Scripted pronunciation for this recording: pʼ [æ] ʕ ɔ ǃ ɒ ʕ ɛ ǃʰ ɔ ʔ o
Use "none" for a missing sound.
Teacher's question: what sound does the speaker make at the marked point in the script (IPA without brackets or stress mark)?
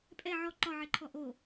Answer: ɛ